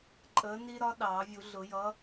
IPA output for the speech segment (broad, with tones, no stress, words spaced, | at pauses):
ǃʼəː˨˥ni˦ɾɒ˦ ɗɑː˨˩˦vʲu˨˩˦ɮʊ˨˩˦jʌ˨˥